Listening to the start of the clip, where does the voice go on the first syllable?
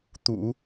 low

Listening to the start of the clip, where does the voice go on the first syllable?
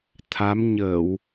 rising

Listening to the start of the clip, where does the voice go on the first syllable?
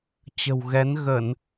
low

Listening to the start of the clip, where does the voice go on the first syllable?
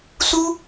high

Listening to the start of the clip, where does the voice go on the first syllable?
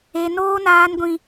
high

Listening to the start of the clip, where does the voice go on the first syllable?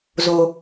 high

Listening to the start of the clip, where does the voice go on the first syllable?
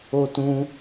high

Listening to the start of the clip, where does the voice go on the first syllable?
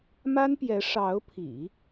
high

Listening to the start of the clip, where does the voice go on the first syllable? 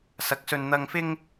rising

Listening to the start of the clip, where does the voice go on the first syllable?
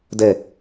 low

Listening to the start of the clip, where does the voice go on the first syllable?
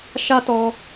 high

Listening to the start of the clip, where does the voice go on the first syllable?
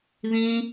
high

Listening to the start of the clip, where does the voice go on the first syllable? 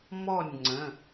falling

